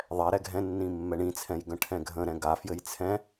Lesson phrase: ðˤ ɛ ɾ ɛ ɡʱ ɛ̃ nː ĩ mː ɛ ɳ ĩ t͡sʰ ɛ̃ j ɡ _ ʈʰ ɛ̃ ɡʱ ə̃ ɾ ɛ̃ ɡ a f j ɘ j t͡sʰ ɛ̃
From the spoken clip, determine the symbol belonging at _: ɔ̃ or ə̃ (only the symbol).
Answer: ə̃